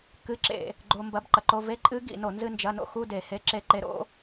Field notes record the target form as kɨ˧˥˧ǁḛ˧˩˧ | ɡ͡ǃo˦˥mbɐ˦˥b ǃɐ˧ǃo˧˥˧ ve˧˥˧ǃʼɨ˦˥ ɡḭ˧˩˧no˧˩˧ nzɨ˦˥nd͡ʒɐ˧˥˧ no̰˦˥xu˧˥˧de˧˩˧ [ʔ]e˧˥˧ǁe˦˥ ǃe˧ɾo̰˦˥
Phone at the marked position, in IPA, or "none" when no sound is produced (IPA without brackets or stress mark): h